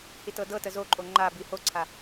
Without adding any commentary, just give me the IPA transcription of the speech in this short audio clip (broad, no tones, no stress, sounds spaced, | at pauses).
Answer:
h i t ɤ d ɤ t ə z o ǃʼ o ŋ͡ǃ a b i h o ǀʰ a